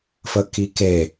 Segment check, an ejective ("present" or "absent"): absent